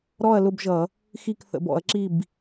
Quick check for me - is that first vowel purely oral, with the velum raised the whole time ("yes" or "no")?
yes